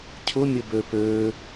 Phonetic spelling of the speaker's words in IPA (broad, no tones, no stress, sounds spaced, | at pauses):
cʰ ʊ mʲ ə b ø p ø